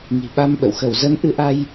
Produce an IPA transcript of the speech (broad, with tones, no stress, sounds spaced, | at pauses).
ŋ i̤˨˩ ɓ a˧ m ɓ ə̰˧˨ w x ə˧˩ w z ə˨˦ n ʔ ɨ˨˦ ʔ a˧ j